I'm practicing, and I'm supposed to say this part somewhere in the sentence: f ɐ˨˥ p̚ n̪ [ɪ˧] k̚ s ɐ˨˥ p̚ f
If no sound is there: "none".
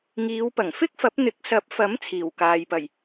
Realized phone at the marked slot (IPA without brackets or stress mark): ɪ˨˥